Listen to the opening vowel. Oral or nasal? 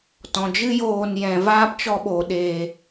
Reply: nasal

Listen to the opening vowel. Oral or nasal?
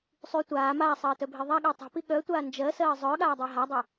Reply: oral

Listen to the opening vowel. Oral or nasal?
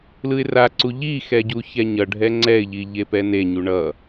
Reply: oral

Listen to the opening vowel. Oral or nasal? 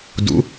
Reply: oral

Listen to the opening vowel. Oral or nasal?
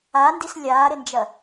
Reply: oral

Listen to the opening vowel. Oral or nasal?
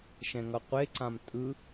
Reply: nasal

